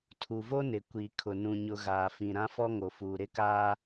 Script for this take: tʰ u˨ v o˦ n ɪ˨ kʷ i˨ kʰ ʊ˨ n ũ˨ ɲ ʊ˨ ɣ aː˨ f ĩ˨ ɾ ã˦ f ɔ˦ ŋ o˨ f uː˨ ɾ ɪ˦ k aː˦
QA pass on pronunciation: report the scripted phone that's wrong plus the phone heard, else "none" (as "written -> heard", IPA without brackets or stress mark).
none